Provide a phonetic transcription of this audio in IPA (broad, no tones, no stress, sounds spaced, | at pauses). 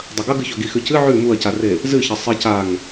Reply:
dˤ ɐ ɡ ɐ ɡ ɨ ç ɵ ɡ i x ʉ c ɨ ʕ ʉ m u ɐ̯ c a r e | z ɨ ç ɐ sˤ i c a ŋ